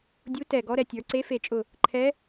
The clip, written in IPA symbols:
dʲu˧˥ tɛ˧˩ ɡɔ˧˥ɾɛ˩˧ tʲə˞˩˧ǀe˧˥fe˧˩t͡ʃʼʊ˧˩ | ǃʰɛ˧˥

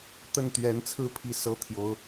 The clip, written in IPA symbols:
t̪ə˥˩nt̪ɥɛ˧˥nt͡sʰɹ̩˥˧ pʰi˥˩sɤ˥t̪ʰjo˧˥ʊ̯

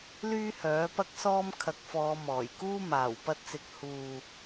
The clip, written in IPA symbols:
lyː˥hœː˨˥ pɐ˥k̚sɔː˥m kʰɐ˨˥k̚fɔː˨˧ mɔː˨˩j kuː˥ maː˨˩wpɐ˧t̚t͡sɪ˨˥k̚ huː˨

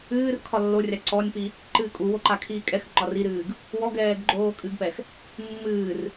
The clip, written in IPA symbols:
ɨːr kʰɒlːorʲa ǀɔnʲpi | ǃɨːkʼuwo ǃakʰiːkʼɛxŋ͡ǃɒr iɾɨːɡ | wɔɡɛːɡ ɡ͡ǃoːkʼɨɡpɛx | mːɨːr

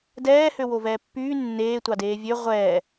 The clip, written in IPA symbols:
dɛːhø wovɛːpːyː nːeːtʷɑdeː vʲø ʁʷɛː

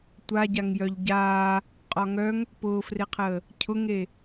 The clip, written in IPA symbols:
tʷaɟaŋ jœʎɟaː | qʼɒŋœŋ | pʊːfreqʰəː | cʰʊŋe

